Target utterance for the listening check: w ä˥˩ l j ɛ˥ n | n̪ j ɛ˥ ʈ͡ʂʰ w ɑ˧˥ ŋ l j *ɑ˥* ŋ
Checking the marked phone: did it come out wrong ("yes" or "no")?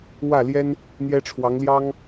no